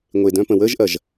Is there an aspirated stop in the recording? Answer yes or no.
no